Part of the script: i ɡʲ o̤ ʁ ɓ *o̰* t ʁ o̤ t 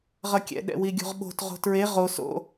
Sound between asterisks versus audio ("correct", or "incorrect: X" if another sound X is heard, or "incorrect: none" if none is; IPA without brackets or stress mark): incorrect: o̤